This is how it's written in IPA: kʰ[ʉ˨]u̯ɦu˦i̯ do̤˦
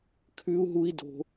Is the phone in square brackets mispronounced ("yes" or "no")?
yes